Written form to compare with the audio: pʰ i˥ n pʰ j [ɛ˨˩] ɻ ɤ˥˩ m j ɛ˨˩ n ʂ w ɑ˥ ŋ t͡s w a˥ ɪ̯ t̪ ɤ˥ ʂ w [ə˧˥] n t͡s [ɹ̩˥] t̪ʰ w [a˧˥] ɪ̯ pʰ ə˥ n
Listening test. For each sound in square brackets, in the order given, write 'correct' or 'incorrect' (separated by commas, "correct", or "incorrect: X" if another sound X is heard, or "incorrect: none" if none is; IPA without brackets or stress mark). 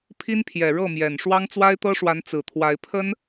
correct, incorrect: a˧˥, incorrect: ɹ̩˨˩, correct